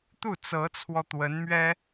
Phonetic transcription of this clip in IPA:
t̪u˥˩t͡sɤ˧˥t͡sʰwɔ˧ t̪wə˧˥nmɥɛ˥

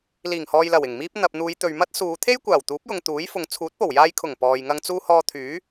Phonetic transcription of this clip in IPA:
liː˨˩ŋhɔː˨jlɐ˨˩w ɪ˨˩ŋmiː˥p̚ n̪ɐ˨p̚n̪uː˨˧jt̪ɵ˨ɥ mɐ˥t̚suː˨˧ t̪ʰe˥jkʷaː˨˩wt̪uː˨˥p̚jʊ˨ŋ t̪uː˨˥jfʊ˨ŋ t͡sʰuː˨˥t̚po˨˩wjaː˧jkʰʊ˨˩ŋ pɔː˨jŋɐ˧ŋ t͡suː˥ hɔː˧t̪ʰyː˨˥

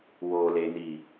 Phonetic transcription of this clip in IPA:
woleni

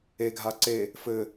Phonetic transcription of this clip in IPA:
eɡʱa ǀe | fɘ

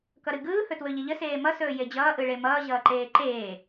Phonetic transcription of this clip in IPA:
kʌɾɨɡɯː hɵtwɵʎeʎə seːmʌ sɵːjed͡ʑʌː ʔɯɭemʌː ʑʌːǃeːǃeː

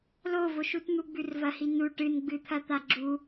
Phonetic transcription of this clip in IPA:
lovoʃutn̪u ɡ͡bʉrvɐhinu ʈɨnɡ͡bɨt̪ʰɐt̪a ɡ͡ǁu

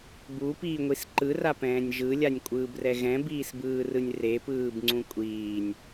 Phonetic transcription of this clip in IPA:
bupiːŋʷis ǃɯrapɛ̃ːnʲ ʒɯlʲanʲkʷʼɯːbrɛ ɣɛ̃biːsbɯːrɯnʲ repɯːbŋ͡ǀũ kʷʼiːnʲ

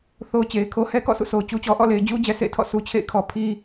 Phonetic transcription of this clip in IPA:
θo˦ʊ̯t͡ɕe˨ɪ̯kʰo˦ hɛ˦kɔ̰˦˨sʰṵ˦˨so˨ʊ̯ t͡ɕu˨t͡ɕɔ˨ʔɔ̰˦˨le˨ɪ̯ d͡ʑu˦d͡ʑɛ˨sḛ˦˨ɪ̯tʰɔ̰˦˨ sʰu˨t͡ɕʰḛ˦˨ɪ̯kʰɔ˨ pʰi˦

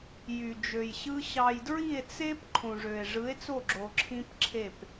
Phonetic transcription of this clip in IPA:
jy˨d͡ʒø˨jɕɯ˦ ɕɑ˨jdɹi˦˨e̯t͡se˦p ǃʰũ˨ʐø˨e̯ ʐɯ˨˦e̯t͡so˦˨ɡ͡ǁo˨ ǁʰĩ˦pǁʰe˦˨p

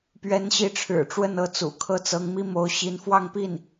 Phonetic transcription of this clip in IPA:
pɥɛ˧˥nɕi˧˥ʈ͡ʂʰɻ̩˨˩ ʈ͡ʂwə˥˧nɤ˥˩ t͡sṵ˨˩kʰɤ˥˩ t͡sɤ˧˥ŋ mi˥mo˧˥ʊ̯ ɕi˧˥nfwɑ˥˧ŋpi˥˩n

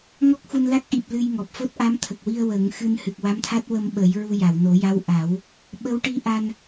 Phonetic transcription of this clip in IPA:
ŋɔ˦˥k̚xu˧nla˦˥k̚ʔi˨˩p̚ lɨ˧jŋɔ˨˩p̚fo˦˥t̚ ʔa˧˥mt̪ʰə˨˩k̚wi˧ə̯ wəː˨˩˦ŋxɨ˧n hɨ˨˩k̚ wa˧˥mt̪ʰa˦˥t̚ wə˧mɓə˨˩˦j ɹu˧ja˨˩˨wno˨˩˦ja˧˥w ʔa˨˩˦w | ɓə˧˥wʈi˧˥ʔa˧n

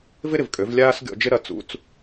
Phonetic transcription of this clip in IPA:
vɪ˥ɾɪ˩vkʼø˩˥v lʲaː˧s ɡʲɔ̰˩˥d͡ʒɪ˥ ɾɐ˩˥ t͡sṵ˩˥t͡s

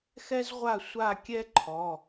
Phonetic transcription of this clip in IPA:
xɛ˥zʁʷa˥˨ sʷa˥˨kʲɛ˥ǃʰɔ˩˧˩

